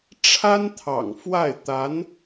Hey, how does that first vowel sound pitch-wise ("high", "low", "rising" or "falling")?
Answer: high